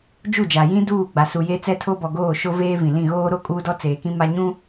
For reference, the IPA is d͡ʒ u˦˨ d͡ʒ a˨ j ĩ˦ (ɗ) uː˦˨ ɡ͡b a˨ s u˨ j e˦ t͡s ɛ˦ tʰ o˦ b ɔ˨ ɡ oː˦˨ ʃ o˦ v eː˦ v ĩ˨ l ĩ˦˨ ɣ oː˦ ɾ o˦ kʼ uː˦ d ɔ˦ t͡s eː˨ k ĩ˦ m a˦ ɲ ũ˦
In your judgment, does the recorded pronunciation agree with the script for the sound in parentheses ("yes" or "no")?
no